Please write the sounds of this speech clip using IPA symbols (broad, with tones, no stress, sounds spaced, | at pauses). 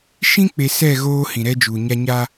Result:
ʃ ĩ˦ k͡p e˨ s ɛ˦˨ ɣ oː˦ h ĩ˨ ɾ ɛ˦ d͡ʒ uː˨ ɲ a˦ ɲ a˦